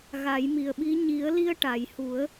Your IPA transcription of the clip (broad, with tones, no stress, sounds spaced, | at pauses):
ɣ a˨˩˦ j m i˨˩ ə̯ ɓ i˧˥ ɲ i˨˩˦ ə̯ l i˧ ə̯ ʈ a˨˩˨ j h u˨˩˦ ə̯